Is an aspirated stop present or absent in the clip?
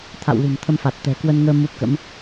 present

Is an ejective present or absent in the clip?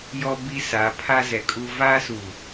present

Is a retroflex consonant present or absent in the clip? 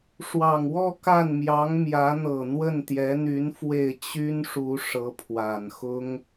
present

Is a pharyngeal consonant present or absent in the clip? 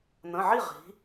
present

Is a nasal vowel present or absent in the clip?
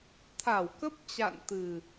absent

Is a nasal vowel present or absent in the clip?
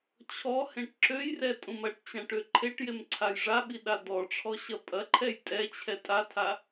present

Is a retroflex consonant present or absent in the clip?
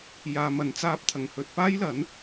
absent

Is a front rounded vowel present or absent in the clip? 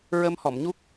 absent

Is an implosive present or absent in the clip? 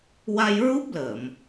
absent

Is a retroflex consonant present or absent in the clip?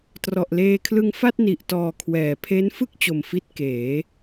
absent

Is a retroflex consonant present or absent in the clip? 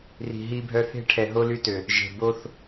present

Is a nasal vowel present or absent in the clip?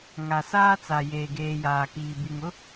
absent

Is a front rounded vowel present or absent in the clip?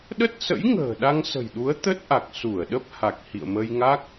absent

